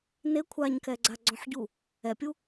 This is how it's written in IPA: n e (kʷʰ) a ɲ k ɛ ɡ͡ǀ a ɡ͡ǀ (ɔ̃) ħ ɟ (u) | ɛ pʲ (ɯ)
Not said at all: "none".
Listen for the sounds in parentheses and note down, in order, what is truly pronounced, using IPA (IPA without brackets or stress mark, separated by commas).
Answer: kʷʰ, ɔ̃, u, u